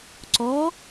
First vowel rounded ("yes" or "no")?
yes